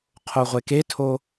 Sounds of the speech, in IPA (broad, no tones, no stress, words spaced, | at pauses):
qʰoʁʷeketʰo